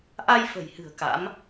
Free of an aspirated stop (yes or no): yes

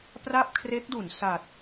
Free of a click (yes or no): yes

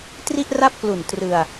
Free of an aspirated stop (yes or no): yes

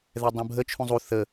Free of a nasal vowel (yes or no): no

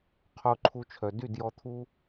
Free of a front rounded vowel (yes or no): no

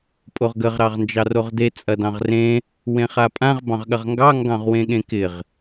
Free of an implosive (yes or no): no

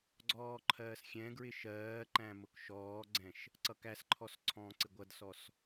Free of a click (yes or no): no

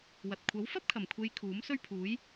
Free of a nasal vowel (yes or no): yes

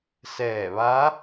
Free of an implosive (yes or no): yes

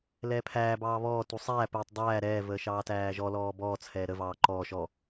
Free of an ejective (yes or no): yes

